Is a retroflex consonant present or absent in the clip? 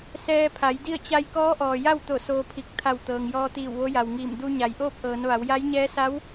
absent